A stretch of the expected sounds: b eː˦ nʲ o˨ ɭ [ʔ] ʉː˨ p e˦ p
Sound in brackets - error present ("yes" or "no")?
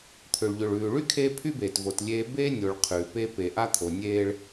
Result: yes